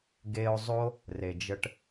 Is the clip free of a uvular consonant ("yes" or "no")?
yes